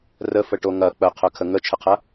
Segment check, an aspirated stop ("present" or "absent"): present